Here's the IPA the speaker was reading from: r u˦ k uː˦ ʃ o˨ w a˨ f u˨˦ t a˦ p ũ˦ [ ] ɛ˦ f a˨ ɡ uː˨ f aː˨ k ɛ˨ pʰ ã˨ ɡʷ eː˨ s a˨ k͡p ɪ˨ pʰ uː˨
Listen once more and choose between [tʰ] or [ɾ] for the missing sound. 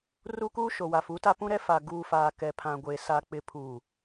ɾ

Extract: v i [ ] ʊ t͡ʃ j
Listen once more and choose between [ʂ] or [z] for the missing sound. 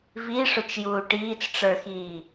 ʂ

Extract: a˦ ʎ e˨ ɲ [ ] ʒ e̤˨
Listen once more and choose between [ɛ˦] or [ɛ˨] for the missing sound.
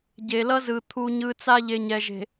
ɛ˨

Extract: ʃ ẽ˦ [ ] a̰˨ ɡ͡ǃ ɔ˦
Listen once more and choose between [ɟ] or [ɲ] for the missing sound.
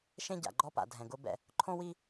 ɟ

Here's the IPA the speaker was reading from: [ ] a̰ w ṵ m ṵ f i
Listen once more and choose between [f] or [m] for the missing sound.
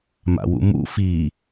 m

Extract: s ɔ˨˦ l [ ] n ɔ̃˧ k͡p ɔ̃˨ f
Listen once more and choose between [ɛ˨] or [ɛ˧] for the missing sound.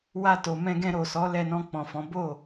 ɛ˧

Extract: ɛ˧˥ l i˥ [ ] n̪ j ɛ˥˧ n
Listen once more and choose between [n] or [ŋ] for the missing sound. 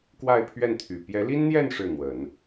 n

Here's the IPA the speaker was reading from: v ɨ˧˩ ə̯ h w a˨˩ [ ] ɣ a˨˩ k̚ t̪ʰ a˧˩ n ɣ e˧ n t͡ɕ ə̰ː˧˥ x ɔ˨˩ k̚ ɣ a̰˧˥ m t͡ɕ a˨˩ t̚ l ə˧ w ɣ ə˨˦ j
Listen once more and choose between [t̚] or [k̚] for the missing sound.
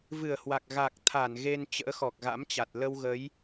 k̚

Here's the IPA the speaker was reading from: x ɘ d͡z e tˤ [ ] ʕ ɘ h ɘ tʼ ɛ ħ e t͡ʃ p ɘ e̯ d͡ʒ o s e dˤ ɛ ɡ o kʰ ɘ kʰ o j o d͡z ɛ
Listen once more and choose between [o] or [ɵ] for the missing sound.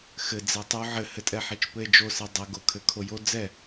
o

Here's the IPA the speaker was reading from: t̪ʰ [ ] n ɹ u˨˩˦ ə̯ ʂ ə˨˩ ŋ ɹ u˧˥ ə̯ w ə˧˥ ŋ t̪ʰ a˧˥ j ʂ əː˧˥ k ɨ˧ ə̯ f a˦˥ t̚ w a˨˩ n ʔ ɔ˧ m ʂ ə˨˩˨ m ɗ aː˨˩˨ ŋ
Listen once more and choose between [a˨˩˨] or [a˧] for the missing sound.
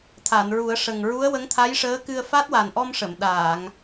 a˨˩˨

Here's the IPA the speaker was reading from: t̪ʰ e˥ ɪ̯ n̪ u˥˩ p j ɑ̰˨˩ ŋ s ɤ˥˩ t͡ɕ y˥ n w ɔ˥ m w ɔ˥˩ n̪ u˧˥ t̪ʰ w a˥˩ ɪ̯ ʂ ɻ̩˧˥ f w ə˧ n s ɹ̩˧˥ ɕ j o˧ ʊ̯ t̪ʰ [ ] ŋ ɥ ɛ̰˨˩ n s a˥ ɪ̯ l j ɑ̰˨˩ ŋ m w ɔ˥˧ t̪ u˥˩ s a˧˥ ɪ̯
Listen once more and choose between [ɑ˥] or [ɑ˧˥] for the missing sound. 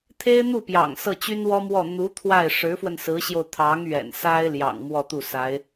ɑ˧˥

